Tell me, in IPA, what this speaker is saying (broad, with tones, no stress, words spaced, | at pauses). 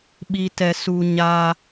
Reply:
ɓi˧tɛ˧ su˨ ɲa˧